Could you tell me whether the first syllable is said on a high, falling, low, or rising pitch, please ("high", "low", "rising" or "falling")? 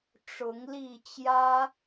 rising